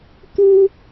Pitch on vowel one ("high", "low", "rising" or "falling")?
high